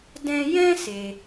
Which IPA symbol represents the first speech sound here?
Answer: d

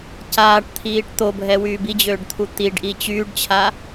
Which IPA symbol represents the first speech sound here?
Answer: c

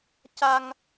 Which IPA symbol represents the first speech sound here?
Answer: c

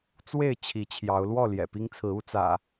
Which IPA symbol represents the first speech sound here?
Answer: t͡s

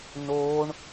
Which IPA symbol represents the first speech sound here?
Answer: n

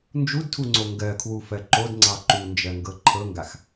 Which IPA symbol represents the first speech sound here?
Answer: n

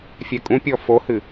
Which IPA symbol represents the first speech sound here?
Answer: fʲ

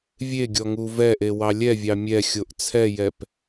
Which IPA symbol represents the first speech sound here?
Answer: vʲ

